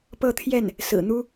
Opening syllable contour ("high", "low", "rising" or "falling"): falling